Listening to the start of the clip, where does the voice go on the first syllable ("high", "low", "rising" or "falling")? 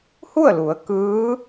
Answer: falling